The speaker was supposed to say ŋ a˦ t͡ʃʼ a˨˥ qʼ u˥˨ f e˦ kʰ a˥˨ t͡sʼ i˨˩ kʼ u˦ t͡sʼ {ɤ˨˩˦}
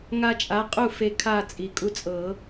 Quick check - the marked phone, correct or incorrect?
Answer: correct